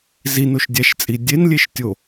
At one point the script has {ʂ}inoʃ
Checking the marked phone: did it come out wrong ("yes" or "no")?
yes